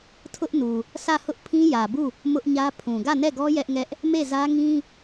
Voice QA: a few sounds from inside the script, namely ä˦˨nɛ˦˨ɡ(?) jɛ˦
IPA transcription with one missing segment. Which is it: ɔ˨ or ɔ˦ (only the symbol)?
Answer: ɔ˦